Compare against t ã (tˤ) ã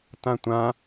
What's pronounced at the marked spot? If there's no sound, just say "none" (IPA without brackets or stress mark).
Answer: tʷ